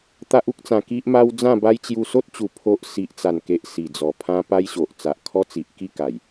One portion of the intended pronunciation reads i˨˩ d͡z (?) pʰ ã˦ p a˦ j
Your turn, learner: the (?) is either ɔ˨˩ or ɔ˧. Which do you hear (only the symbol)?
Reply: ɔ˨˩